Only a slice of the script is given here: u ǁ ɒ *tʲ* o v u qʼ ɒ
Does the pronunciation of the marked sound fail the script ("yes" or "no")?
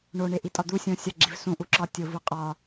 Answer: no